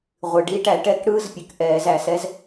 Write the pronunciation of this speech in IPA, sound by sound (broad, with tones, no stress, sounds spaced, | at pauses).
ʁʷ ɨ˩ ɖ i˧˥ ʈ æ˧˩˧ ʈ ɛ˧˥ k ɽ ɯ˧˥ z pʲ ɨ˩ k ʔ ɛː˧˩˧ z æ˧˩˧ s ɛ˧˥ z